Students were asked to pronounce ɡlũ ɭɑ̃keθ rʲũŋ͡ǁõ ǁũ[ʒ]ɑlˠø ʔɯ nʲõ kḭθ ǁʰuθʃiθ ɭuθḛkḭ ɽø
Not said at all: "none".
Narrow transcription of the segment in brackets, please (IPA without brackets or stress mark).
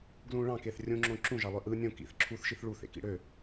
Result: ʒ